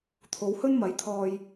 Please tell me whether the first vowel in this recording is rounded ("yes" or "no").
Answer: yes